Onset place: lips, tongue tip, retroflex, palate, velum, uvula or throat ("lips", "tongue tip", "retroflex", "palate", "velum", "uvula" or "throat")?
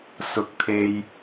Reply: tongue tip